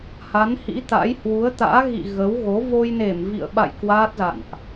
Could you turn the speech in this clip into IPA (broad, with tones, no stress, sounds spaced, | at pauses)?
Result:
h a˨˦ n h ḭ˧˥ t̪ a̰˧˥ j h w u˨˦ ə̯ t̪ a̰ː˧˥ ɣ ḭ˧˨ ɣ ə˨˦ w ɣ o˨˦ v o˧ j n e˧˩ m v ḭ˧˨ ə̯ ɓ a̰˧˨ j k w aː˦˥ t̚ z a̰˧˨ n ʔ